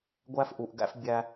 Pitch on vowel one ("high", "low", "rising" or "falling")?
high